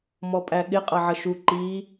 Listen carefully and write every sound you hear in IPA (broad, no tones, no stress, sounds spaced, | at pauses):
m ɔ pʼ æ ɠ ɪ qʼ ʌ ʕ ʌ ʃ u ǃ i